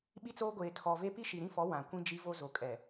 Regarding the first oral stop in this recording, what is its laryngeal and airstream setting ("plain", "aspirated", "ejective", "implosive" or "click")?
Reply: implosive